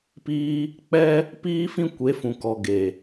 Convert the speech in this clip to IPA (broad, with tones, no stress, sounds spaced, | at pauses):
p iː˦ | k͡p ɛ˦ | p iː˦ f ĩ˦ kʷ e˨˦ f ũ˨ k ɔ˨ ɡ e˨